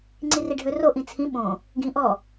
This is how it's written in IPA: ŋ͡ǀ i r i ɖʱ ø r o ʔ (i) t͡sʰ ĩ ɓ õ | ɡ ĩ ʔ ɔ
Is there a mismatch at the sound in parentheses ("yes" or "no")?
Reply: yes